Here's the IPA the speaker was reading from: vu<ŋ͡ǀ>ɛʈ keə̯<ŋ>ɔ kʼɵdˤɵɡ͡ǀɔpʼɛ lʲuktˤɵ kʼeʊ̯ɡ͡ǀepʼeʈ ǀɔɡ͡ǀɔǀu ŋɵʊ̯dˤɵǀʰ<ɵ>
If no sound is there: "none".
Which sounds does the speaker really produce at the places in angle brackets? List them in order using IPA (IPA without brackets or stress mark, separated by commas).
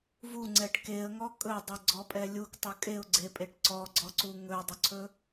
ŋ͡ǀ, ŋ, ɵ